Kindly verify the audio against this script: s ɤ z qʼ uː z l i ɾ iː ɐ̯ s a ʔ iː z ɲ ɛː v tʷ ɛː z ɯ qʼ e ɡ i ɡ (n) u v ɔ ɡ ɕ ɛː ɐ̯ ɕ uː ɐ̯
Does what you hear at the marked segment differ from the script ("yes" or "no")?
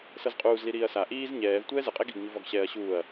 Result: yes